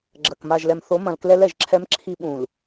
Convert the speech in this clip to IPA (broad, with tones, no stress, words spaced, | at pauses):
ɡ͡ǁɐ˨k ma˨ʒlɛ˨mθo˨˦ mɐ̃˨l klɛ˦lɛ˦˨ʒǁʰɛ˦mǁʰi˦ ɓũ˨l